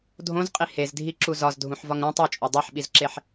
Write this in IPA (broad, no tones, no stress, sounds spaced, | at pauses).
dʱ õ z qʼ i h e z dʱ i ǁ u z ɒ z dʱ ũ ħ v ɒ ŋ ɾ ũ tˤ o t͡ʃʼ o dˤ e ħ ɓ i z ǁ e ħ